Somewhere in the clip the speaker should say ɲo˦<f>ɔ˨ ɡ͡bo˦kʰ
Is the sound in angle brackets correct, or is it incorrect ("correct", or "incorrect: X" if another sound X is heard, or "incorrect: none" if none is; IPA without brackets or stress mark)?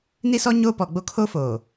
incorrect: p